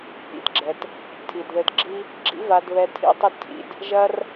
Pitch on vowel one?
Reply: low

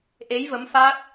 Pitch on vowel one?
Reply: rising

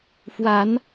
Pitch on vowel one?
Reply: rising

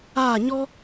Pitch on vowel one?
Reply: falling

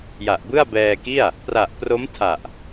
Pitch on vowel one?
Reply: low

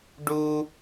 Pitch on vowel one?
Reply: high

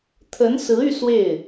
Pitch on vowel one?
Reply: rising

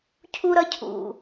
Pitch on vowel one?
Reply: high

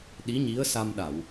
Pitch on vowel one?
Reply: rising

